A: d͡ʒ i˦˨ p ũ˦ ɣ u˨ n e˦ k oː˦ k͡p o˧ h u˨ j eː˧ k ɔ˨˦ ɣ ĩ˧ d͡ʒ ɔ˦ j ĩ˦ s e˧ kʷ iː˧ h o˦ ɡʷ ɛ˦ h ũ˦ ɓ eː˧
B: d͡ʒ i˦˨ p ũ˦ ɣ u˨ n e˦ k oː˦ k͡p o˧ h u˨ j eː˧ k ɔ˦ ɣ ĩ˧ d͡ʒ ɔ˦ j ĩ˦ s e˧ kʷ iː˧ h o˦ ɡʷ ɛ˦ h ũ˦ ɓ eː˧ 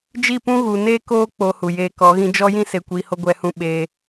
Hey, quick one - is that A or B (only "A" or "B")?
A